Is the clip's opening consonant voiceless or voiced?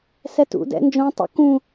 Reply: voiceless